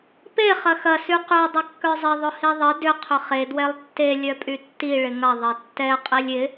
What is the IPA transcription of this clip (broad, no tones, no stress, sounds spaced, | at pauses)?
p e χ ɐ x ɐ s y q ʏ o̯ dˤ ɪ kː œ zˤ ɪ ðˤ ʊ h i ðˤ ɪ d ʏ qʰ ʏ χ e d w ɛ lˠ tː e lʲ œ pʼ y tː i ɭ ɪ ŋ ɐ ðˤ ɐ tː ɛ qʼ i lʲ ɪ